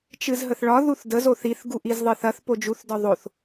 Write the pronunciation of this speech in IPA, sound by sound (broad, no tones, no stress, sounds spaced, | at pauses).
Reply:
t͡ʃ ɨ z ɦ ə θ ɭ ɒ ð u θ d ə z o θ i θ ɡ u ʔ i z ðˤ ɨ θ ɐ θ p o d͡ʒ u θ d ɒ ðˤ o θ